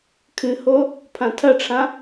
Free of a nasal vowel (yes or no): no